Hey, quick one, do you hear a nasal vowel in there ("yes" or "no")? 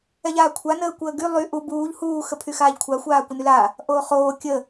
no